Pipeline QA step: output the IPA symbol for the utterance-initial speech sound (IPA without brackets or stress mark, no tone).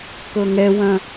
k